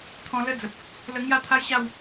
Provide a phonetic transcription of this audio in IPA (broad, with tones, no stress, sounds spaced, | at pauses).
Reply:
t̪ʰ ɔ̃˧ l ə˦ d͡z ə˨ p̚ | l ə˧ ŋ j a˥˧ t̪ʰ a˦ j ɕ a˥˧ w